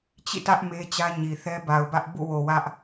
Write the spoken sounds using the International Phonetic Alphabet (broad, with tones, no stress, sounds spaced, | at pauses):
t͡ɕ ḭ˦˨ t ä˦ ʔ m e˦ t͡ɕ ä˦ ɲ i˨ θ ɛ˦ b a˨ ʊ̯ b ä˦ ʔ b ṵ˦˨ w o˨ w ä˦ ʔ